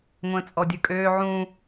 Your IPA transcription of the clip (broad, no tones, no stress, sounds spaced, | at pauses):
ŋʷ ə̃ː t͡sʼ ɔ dʲ ɯ kʼ øː ʕ ũ